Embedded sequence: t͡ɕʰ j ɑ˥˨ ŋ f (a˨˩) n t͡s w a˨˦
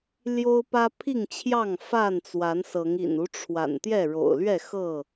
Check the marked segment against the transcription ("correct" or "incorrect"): incorrect